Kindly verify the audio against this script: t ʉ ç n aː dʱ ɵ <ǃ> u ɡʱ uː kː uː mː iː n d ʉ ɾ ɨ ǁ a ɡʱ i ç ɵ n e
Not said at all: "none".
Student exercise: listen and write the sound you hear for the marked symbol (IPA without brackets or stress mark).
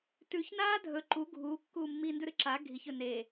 ǃ